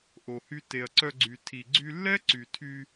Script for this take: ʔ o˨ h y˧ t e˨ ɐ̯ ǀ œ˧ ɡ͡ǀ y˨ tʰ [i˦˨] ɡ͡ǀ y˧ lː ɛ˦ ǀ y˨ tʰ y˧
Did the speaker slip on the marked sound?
yes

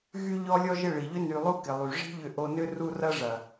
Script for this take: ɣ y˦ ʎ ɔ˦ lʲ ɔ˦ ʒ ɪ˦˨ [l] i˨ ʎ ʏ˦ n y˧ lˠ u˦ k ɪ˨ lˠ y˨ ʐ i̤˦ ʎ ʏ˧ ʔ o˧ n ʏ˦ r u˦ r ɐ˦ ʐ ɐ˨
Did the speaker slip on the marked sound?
yes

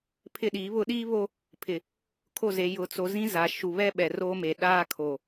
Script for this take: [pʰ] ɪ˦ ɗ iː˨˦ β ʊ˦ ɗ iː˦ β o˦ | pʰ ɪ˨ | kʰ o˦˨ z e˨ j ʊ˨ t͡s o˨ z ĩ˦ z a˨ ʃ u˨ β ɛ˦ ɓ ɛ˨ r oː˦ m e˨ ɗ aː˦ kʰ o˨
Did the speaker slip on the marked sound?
no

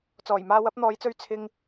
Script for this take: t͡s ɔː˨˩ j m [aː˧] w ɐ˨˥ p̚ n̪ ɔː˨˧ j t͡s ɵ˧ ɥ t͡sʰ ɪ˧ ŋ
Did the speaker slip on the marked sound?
no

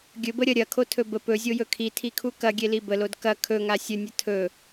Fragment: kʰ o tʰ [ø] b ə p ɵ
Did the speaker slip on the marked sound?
yes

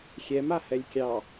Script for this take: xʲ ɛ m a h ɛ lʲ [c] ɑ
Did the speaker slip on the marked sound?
yes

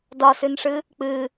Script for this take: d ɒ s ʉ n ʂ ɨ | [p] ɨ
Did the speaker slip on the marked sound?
yes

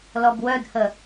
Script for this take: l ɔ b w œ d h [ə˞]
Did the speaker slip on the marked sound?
yes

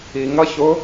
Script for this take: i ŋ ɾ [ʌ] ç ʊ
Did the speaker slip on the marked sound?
no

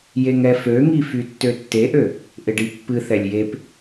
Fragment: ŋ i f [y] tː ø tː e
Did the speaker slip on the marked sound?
no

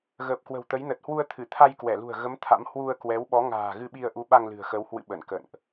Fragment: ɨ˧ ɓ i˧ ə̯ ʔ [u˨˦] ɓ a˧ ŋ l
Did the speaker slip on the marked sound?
no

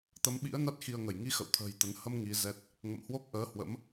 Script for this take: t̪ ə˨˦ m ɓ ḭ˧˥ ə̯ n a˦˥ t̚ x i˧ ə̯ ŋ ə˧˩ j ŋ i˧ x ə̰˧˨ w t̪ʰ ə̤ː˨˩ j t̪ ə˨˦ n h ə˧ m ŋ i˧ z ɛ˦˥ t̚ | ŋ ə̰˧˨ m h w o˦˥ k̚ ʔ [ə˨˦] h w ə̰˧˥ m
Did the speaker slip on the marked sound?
yes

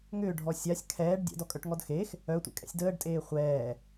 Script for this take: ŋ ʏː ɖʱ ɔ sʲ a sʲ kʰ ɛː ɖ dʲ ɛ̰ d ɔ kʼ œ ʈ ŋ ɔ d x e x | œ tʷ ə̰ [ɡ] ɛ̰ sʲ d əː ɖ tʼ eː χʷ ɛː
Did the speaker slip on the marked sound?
yes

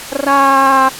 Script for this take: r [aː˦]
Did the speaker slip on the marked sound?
no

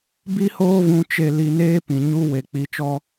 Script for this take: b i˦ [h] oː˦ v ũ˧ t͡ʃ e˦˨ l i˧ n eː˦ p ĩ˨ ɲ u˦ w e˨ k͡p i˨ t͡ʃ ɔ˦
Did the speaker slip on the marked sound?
no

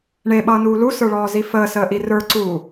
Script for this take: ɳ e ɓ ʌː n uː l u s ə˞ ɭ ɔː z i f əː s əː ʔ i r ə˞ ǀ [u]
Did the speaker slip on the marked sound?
yes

